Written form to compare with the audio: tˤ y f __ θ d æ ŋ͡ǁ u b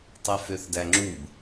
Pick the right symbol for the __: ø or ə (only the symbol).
ø